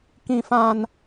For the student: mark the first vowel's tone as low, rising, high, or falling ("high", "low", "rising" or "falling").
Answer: low